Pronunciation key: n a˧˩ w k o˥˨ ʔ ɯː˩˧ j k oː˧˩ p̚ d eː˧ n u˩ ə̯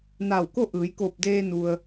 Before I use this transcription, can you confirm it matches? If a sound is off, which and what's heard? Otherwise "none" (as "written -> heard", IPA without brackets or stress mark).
none